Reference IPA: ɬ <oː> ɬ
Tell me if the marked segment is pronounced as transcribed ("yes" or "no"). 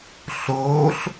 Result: yes